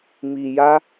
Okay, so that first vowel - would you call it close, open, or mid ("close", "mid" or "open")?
close